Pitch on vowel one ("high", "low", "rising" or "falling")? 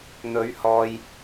rising